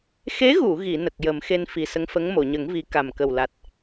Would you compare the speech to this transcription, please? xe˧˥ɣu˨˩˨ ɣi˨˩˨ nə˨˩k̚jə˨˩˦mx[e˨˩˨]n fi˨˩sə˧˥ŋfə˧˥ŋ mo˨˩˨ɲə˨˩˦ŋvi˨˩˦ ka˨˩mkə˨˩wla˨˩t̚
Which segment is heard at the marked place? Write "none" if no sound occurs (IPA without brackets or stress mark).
e˧